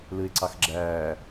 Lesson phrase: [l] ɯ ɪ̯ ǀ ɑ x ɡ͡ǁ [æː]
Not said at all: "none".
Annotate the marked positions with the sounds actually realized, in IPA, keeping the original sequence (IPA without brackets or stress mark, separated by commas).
l, æː